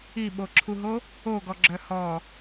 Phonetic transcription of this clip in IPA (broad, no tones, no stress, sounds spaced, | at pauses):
i ɓ o ǁʰ u ɦ o | o ɡ ɔ ɡ͡ǁ œ h ɔ